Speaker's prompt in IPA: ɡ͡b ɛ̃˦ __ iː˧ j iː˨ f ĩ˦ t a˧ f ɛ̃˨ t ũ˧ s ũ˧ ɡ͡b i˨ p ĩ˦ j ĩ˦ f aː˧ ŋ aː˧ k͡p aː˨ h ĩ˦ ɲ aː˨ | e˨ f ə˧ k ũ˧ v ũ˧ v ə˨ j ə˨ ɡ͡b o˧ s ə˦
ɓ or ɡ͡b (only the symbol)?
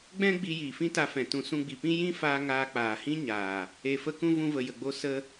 ɡ͡b